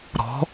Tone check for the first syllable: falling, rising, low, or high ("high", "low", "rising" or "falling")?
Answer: rising